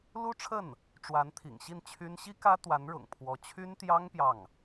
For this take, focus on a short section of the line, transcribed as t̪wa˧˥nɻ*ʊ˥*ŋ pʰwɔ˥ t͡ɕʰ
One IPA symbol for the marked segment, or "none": ʊ̰˨˩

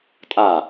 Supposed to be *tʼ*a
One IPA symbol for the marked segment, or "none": tʼ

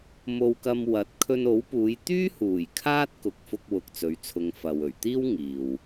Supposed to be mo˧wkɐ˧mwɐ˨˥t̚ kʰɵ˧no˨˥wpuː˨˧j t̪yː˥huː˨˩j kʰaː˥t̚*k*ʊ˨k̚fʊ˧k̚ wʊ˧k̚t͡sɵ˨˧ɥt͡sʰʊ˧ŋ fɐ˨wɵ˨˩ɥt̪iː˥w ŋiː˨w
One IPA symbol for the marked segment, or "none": k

